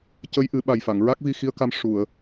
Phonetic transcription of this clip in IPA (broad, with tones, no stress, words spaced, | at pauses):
cə˧˥jʔɨ˨˩˦ɓa˨˩jfa˨˩˨ŋ ɹa˦˥k̚vi˧xi˧˥ə̯ka˧m ʂu˨˩˨ə̯